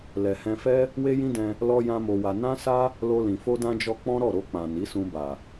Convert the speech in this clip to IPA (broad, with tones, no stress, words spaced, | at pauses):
lɛ˨hɛ̃˧fɛ˦ | we˦jĩ˦dɛ̃˧ | lɔ˦jã˦mo˧wa˧ nã˦sa˦ | lo˧lĩ˨ fo˧dã˧d͡ʒɔ˧ k͡pɔ̃˦ɾɔ˦˨ɾo˧k͡pã˨ ni˨˦sũ˧ ba˨